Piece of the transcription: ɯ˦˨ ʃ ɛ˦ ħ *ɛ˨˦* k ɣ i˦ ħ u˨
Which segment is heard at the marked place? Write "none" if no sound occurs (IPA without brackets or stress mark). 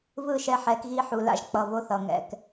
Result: ɛ˨˦